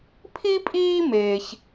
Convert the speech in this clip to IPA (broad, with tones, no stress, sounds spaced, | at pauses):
pʰ i˥ pʼ iː˥ m eː˥ ç